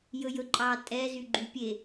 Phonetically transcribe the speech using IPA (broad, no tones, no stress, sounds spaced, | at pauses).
j ɵ j ɵ ǃʼ ɑ tʼ ɛ z y ɡ͡ǃ y pʲ e